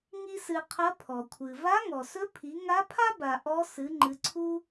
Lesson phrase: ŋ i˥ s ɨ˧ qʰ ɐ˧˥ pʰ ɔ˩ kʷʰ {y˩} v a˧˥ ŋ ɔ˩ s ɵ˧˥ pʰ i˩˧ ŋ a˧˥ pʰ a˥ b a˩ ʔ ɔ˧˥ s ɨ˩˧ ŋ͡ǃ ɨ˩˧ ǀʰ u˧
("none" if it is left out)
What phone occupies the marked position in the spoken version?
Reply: ɨ˩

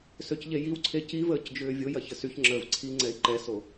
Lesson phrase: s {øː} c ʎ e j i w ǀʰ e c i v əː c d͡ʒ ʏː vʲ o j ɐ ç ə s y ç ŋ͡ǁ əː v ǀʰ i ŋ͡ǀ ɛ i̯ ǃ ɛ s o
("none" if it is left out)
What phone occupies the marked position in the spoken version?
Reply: ø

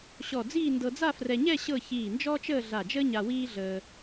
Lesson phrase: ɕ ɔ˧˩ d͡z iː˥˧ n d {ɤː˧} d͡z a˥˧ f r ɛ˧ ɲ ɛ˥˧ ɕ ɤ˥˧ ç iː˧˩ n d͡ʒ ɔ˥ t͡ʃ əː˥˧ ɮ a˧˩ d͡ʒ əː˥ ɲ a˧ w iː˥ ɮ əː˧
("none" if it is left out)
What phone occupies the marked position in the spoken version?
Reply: ɤ˧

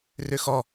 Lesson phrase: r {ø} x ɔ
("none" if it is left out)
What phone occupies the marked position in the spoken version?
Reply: ø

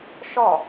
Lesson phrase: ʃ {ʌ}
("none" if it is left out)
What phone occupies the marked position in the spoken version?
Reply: ɒ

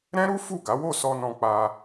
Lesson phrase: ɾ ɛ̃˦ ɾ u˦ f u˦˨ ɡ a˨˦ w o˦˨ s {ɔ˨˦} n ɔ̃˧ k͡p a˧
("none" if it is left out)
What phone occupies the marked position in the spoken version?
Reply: ɔ˧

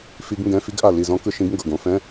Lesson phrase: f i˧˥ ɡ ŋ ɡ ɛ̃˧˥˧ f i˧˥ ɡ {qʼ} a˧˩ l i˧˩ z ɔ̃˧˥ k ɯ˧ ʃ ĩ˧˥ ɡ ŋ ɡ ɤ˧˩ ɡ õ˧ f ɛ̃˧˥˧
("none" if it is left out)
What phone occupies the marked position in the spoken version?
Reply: ʔ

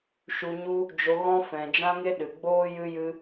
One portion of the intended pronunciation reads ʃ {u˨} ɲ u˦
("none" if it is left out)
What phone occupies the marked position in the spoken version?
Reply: u˧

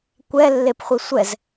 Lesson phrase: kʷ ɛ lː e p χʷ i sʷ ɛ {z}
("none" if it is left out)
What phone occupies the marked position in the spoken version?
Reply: z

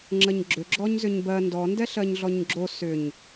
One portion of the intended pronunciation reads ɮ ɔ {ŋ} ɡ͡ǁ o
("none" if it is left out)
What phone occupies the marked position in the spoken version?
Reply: ɲ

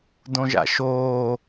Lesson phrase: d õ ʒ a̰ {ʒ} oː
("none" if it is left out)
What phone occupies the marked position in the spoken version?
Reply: ʃ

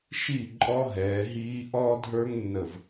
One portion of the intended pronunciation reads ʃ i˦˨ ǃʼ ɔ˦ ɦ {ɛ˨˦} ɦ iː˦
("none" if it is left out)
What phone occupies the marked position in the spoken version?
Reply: ɛː˨˦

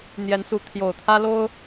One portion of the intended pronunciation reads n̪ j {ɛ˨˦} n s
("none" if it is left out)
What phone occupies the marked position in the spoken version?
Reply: ɛ˨˦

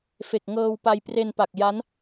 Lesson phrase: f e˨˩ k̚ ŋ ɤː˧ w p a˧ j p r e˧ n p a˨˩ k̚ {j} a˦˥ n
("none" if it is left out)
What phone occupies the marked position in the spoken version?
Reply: j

